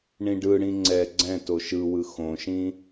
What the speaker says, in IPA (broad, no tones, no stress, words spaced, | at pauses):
ɳĩɖɯɽĩ ŋ͡ǀɛ ɡ͡ǀɛ̃ toʃɯwɯ xõʃĩ